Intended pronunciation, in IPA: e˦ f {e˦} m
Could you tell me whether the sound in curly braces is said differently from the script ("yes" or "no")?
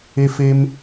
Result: no